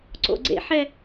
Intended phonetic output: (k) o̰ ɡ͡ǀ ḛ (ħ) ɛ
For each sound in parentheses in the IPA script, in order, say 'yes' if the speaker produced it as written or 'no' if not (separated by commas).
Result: no, yes